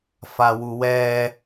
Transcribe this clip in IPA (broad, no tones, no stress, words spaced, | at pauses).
fawuwɛ